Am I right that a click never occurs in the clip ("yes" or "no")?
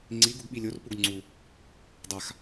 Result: no